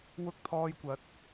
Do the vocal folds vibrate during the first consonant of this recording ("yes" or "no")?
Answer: yes